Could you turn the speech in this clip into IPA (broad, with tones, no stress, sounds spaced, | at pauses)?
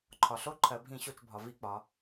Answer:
ǃʰ ɒ˨ ɬ o˦ ǃʰ ɜ˨ bʱ ĩ˦˨ ɕ o˦˨ t͡ʃ bʱ ɒ˨ v i˦ k͡p ɒ˨˦